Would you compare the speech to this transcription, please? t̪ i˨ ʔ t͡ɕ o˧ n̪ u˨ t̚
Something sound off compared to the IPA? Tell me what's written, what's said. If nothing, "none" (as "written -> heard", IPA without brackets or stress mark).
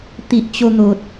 u˨ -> o˨